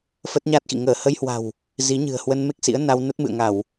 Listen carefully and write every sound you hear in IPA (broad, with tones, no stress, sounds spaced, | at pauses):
f ə˦˥ t̚ ɲ a˦˥ t̚ x ḭ˧˨ ŋ əː˧˩ h ə˧ j h w a̤˨˩ w | z i˨˦ ɲ ɨ̤˨˩ ə̯ h w ə˧ n m e˦˥ k̚ s ḭ˧˥ ə̯ n a˧ w n ə˦˥ t̚ m ɨ̰˧˨ ə̯ ŋ a˧˩˨ w